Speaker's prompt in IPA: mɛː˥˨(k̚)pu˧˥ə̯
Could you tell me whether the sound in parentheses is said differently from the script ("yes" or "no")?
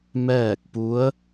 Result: no